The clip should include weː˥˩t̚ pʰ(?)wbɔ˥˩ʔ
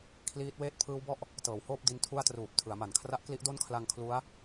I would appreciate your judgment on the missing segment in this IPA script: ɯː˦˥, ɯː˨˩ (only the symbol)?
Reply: ɯː˦˥